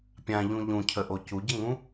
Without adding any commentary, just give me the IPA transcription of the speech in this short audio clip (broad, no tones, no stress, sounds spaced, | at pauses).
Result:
pʲ ã ʎ ũ ʎ ũ cʰ ə ʔ o c u ɟ ə ŋ ũ